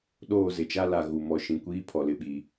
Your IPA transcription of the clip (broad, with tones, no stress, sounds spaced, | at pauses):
ɗ oː˦˨ z ɪ˨ t͡ʃ a˦ l a˨ ɣ u˨ m ɔ˨ ʃ ĩ˨ kʷ iː˦ pʰ ɔ˨ l ɪ˨ ɓ i˨